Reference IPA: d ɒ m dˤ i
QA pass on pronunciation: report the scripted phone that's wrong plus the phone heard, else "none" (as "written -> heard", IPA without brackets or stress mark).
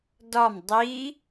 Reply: none